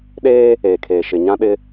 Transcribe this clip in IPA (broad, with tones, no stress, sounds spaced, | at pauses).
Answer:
ɗ eː˦ | eː˨ kʰ eː˨ ʃ ɪ˨ ɲ ã˦ ɗ ɪ˦